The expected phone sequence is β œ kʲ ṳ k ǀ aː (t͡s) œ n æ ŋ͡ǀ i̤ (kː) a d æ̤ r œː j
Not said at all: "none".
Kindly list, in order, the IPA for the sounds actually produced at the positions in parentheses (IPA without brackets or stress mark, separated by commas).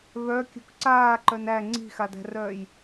ǃ, x